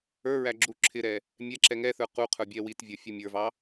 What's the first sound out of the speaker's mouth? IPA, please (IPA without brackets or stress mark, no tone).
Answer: ə˞